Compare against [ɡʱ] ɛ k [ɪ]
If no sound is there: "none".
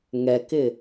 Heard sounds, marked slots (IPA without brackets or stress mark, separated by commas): ŋ, ɪ